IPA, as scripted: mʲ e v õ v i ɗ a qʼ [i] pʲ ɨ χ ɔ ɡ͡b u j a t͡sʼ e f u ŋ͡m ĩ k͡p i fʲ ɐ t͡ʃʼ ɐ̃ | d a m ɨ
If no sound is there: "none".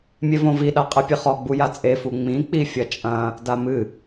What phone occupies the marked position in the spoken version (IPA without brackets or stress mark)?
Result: ɨ